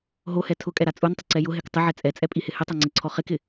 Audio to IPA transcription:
ɦ o h ɛ tʰ ʊ kʼ ɛ ɾ a t͡sʼ u n tˤ ɪ ǀ ɛ j ʊ ɦ e k tˤ ɪ ʕ ɛ t͡sʼ ɛ t͡sʼ ɛ pʼ i h ɪ h ɪ tˤ a ŋ͡ǀ e ǀʰ ɔ χ ɪ k ɪ

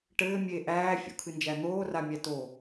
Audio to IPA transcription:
ʈ ɘː mʲ eː ʔ æː fʲ o̰ kʰ ɨ n d͡ʒ æ n̪ oː r a mʲ æ t o

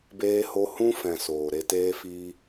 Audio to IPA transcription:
b eː˧ h o˧ h ũ˦ f ɛ̃˨ s oː˨ ɾ e˧ t eː˦ f iː˦

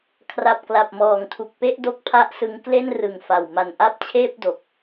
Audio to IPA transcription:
kʰ r a˨˩ p̚ k l a˨˩ p̚ m ɔː˨˩ ŋ tʰ u˨˩ k̚ p e˥˩ ʔ d o˦˥ k̚ pʰ a˦˥ ʔ s ɯ˧ ŋ k l e˥˩ n r ɯ˨˩ ŋ f a˨˩ w m a˨˩ n ʔ a˥˩ p̚ t͡ɕʰ eː˥˩ p̚ d o˨˩ k̚

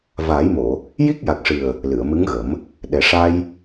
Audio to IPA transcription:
v aː˨˩˦ j m o˨˩˨ | j i˦˥ k̚ j a˨˩ k̚ ʂ ɨ˨˩ ə̯ | l ɨ˨˩˨ ə̯ m ɨ˧˥ ŋ ɣ ə˨˩˦ m | ɗ ɛ˨˩ ʂ a˧ j

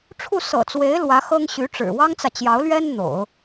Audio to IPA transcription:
ʈ͡ʂʰ u˥˩ s ɤ̰˨˩ t͡s w e˧˥ ɪ̯ l w ä˧˥ x ɤ˥ ŋ ɕ y˧˥ ʈ͡ʂ ɻ̩˨˩ w ɑ˥ ŋ t͡s ä˨ t͡ɕ j ɑ˧˥ ʊ̯ l ɥ ɛ˥ n n̪ o̰˨˩˦ ʊ̯

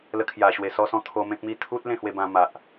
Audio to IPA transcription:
l ə˧ kʰ j a˨˩ ɕ w e˨˩ s ɔ˧ s ɔ̃˧ t̪ʰ o˧ m ẽ˦ k̚ m i˥˧ t̪ʰ u˦ t̚ l ẽ˥˧ h w e˧ b ã˧ m a˨ ʔ

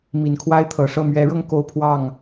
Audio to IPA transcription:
m i˨˩ n kʰ w a˦ ɪ̯ t̪ʰ ɤ˨˩ ʂ ɤ˥˨ m ɥ ɛ˨˦ ɻ ɤ˧ ŋ k o˦ ʊ̯ pʰ w ɑ˥˨ ŋ

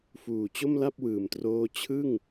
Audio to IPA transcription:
f uː˨˩ t͡ɕ o˥˩ m l a˥˩ p̚ w ɯː˨˩ m t r oː˥˩ t͡ɕʰ ɯ˥˩ ŋ

